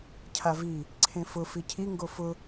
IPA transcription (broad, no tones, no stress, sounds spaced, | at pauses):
cʰ a v i | ǀʰ ẽ f ʊ f i cʰ i ŋ ɡ o f ʊ